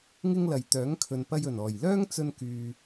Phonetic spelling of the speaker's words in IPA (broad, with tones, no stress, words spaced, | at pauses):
ŋɪ˥ŋlɐ˨jt̪œː˨˥ŋ kʰɵ˨npɐ˧jɵ˨˩n ɔː˨˩jlœː˥ŋt͡sɵ˧nkyː˨